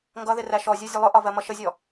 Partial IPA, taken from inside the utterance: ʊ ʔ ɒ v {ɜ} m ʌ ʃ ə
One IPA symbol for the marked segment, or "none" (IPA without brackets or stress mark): ɜ